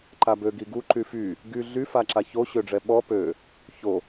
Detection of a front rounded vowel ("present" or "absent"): present